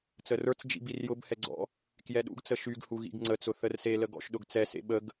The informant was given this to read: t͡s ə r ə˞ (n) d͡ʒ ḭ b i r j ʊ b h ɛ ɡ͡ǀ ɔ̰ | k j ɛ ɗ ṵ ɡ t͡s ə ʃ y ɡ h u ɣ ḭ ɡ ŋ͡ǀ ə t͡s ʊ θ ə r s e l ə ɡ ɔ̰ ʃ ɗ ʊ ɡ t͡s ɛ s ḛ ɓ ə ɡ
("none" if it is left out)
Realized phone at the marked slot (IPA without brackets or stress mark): t͡s